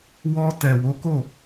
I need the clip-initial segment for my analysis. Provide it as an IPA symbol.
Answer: w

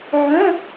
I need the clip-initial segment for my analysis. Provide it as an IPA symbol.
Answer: ʕ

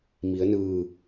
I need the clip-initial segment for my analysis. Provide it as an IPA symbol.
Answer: m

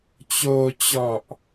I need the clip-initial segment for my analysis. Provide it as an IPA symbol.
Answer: t͡ɕ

